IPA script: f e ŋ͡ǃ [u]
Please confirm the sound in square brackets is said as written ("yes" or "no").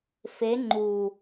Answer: yes